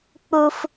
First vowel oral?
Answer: yes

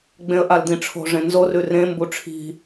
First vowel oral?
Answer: no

